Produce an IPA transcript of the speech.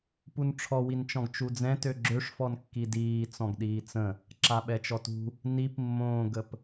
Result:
p u n ʈ͡ʂʰ ɔ w i n t͡ʃ ɔ̃ ɡ t͡ʃ u d͡z ɛ̃ t ø ɡ͡ǁ ø ʂ f ɔ n kː i d iː t͡s ɔ̃ ɡ ɗ iː t͡s ə̃ | ǁ a ɓ ɛ t͡ʃ ɔ t ṳ | n i p mː õː ɡ ə p

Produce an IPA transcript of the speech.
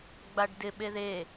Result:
ɡ͡b a ɖ d ɪ ɓ e ð e

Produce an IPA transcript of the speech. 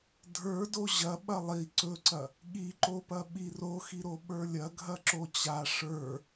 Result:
dʱ ə˞ d o ʑ ɐ ɓ ɐ lˠ i ǀ ɵ ǀ ɐ | ɠ i ǃ o p ɐ ɓ i r o x i ɾ o ɓ ə˞ lʲ ɐ ɡʱ ɐ ǁ o t͡ɕ a ʂ ə˞

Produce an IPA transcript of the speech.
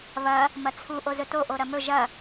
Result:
β ɐ | m ɐ t͡sʰ u ʔ o z ɵ t o ʔ o ɾ ɐ m ɵ ʒ ɐ

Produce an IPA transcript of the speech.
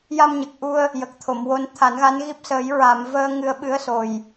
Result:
j a˧ m ɲ ə˨˩ k̚ ʔ u˧ ə̯ | j ə˨˩ k̚ t̪ʰ o˨˩˨ m w o˧ n t̪ʰ a˨˩˦ n ɣ a˧˥ n ɣ i˦˥ p̚ s əː˨˩˦ j ɹ a˨˩˨ m v əː˧ ŋ ɨ˧ ə̯ ɓ ɨ˧˥ ə̯ s o˨˩ j

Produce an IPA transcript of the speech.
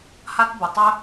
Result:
h a˥ t b ʊ˩ tˤ œ˥

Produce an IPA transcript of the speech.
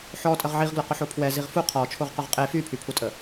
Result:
ħ ɔ tʼ ə ʁ ʕ i ʁ ɡ l ʊ q ʊ ħ o pʰ w ɛ z i ʁ f u qʰ ɔ t͡ʃʰ o ʁ q ʊ ʁ qʼ e f y pʰ y pʰ u tʼ ə

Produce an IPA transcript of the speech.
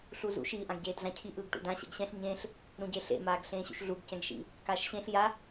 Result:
ɬ u z ṵ ʃ i ʔ ã ɡ ɟ eː d ɮ ã cʰ i ʔ ɯː ɡ ʈ ṵ d ã ɕ ɛ̰ ɡ ɕ ɛ̃ ɬ ɲ ẽː ɬ | ɾ ũ ɟ e ɬ ḛ m aː ɡ ɬ ẽː ɕ ṵ ʃ ɮ u ɡ c ɛ̃ ɡ ʃ ḭ | k aː ʃ ɕ ẽ ɬ j a

